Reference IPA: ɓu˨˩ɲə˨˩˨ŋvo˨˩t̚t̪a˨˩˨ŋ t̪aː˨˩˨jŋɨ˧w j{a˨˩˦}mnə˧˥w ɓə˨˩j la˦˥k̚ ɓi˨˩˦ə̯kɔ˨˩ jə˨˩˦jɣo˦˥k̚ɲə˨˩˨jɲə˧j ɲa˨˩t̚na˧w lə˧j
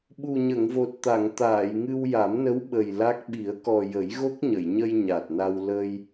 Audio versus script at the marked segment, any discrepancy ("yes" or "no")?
no